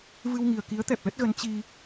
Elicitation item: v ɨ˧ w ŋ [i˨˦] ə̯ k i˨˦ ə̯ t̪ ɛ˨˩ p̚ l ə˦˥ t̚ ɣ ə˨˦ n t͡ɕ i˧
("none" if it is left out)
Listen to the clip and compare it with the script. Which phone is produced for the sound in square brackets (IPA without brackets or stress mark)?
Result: i˨˩